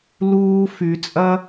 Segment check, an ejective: present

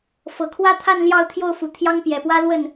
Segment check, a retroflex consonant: absent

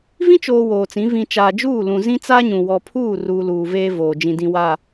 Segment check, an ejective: absent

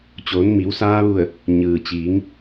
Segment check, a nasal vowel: absent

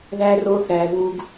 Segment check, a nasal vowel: absent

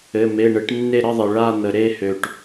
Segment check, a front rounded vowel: present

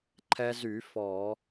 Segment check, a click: present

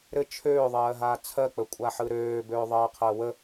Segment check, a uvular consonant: present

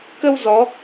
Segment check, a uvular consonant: absent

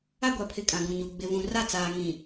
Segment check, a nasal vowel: present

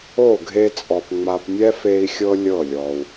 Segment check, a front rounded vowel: absent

